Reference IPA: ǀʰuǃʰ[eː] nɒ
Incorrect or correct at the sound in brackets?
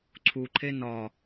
incorrect: e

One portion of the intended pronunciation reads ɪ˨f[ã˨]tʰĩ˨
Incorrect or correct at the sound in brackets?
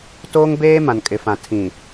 correct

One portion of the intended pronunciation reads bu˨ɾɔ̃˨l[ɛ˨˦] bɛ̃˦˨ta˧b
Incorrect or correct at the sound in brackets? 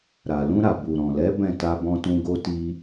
correct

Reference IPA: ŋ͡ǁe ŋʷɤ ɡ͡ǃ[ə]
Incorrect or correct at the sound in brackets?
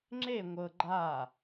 incorrect: a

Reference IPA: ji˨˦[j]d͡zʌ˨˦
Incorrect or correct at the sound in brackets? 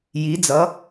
incorrect: none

